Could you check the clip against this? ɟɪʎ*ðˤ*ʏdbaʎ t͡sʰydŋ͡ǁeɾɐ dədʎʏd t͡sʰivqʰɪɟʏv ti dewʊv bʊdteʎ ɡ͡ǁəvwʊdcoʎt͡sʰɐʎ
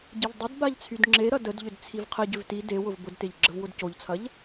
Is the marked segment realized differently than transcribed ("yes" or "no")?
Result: yes